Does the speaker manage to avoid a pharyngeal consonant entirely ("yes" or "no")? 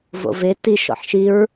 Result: no